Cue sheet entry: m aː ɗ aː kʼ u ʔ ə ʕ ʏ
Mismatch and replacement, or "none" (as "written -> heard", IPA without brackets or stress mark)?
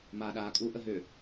ʕ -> ɦ